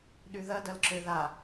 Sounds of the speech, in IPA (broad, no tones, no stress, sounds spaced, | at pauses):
ɗ y ð ɐ d ɐ l ǁ ø ð a